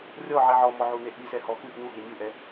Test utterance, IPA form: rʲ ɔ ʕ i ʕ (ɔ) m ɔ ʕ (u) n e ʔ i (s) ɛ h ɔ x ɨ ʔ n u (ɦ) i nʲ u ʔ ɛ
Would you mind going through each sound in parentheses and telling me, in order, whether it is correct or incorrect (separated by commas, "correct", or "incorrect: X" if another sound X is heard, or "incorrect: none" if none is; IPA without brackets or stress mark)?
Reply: correct, correct, correct, correct